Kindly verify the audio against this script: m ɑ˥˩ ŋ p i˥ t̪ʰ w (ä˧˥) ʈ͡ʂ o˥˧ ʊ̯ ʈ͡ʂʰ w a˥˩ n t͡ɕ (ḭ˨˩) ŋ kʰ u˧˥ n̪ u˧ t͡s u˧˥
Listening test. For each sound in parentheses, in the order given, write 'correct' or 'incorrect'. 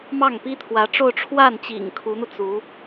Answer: correct, correct

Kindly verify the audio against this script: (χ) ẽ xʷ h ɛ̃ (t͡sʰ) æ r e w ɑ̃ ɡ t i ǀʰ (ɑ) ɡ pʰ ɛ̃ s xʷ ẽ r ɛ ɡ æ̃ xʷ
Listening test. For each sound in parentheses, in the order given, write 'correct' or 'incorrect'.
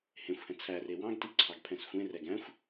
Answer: incorrect, correct, correct

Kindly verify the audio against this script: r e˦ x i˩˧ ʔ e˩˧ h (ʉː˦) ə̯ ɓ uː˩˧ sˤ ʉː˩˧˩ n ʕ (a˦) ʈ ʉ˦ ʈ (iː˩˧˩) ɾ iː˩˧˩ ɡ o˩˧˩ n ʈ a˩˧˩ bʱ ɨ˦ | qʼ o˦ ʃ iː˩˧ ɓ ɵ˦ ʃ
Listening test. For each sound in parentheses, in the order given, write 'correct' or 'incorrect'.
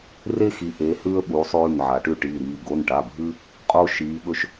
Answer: correct, incorrect, correct

